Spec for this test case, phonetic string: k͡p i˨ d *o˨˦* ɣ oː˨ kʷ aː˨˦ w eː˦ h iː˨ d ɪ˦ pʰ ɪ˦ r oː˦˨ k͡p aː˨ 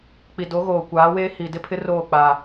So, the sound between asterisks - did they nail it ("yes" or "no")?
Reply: yes